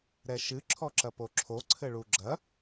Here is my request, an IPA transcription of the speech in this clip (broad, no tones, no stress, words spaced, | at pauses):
ɾɛʃɨ ǁʰɔǁɐpoǁʰo ǀʰɘɭuɡ͡ǁɐ